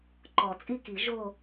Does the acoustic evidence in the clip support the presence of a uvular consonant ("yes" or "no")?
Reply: no